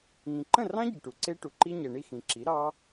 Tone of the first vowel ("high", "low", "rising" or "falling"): low